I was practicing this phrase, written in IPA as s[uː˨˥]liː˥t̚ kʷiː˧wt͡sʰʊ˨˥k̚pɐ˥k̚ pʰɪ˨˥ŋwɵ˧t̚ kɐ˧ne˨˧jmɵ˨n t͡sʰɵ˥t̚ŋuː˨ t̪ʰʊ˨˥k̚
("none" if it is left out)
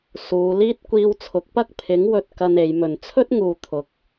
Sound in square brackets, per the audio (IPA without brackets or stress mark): uː˨˧